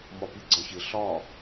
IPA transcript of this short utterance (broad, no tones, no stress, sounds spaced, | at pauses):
m ɒ p i ɡ͡ǀ ɒ ç ɪ ɬ ɒ